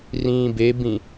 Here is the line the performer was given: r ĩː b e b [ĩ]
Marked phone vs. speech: correct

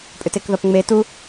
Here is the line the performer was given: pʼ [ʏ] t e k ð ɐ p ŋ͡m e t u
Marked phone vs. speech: correct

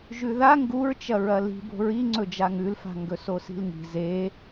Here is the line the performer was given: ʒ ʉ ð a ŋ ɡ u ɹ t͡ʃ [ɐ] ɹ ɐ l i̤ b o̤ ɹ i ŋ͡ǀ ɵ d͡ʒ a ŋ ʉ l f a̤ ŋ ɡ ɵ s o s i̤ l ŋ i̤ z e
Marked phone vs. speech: correct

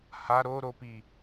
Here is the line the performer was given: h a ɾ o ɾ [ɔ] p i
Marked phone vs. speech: incorrect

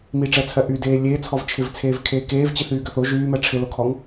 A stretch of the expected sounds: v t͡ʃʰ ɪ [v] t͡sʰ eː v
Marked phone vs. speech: correct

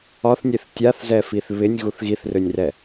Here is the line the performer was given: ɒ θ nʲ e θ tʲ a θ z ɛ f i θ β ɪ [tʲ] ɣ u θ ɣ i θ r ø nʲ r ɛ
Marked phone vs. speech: incorrect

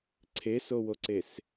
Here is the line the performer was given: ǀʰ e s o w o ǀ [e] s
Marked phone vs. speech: correct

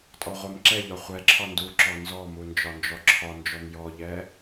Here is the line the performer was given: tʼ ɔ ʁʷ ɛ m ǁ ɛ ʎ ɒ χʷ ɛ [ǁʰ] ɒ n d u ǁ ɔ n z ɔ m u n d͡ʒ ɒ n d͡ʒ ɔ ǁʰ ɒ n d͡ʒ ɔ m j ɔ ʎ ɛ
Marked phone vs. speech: correct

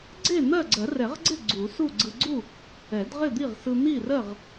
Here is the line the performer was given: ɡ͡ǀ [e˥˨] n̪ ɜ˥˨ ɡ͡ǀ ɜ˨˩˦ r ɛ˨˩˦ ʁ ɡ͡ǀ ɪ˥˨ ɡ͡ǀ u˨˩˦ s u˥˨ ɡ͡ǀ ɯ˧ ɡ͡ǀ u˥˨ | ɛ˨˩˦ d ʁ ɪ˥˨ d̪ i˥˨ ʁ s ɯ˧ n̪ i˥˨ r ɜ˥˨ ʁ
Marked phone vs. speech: correct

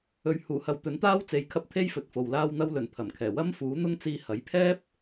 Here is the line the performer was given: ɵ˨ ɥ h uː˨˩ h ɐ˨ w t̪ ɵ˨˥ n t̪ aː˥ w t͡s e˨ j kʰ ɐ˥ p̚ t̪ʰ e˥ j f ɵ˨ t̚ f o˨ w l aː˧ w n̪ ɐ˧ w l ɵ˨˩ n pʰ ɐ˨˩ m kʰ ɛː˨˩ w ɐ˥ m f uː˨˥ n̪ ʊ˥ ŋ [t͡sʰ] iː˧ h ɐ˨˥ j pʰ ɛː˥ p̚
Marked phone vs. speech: incorrect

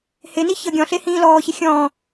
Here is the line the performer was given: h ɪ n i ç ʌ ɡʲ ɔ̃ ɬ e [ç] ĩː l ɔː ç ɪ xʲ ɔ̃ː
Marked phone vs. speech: incorrect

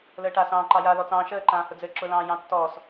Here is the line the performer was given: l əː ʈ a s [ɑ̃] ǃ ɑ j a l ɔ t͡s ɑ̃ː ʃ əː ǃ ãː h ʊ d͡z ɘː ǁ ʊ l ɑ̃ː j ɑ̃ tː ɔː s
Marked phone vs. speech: incorrect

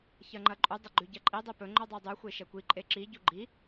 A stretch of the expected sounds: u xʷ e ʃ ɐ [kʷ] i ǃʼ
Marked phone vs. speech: correct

